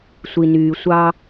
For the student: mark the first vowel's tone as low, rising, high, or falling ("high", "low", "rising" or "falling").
low